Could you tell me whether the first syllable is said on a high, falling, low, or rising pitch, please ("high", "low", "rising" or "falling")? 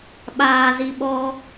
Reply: low